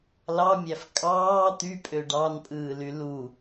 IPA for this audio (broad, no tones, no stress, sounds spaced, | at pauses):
l ɑ mʲ æ f kʼ ɑː t̪ y pʼ ø ɖ ɑ n pʼ ɯː l y l u